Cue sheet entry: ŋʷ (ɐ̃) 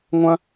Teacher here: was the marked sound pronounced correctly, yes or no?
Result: yes